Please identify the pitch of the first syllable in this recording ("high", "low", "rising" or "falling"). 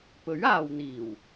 rising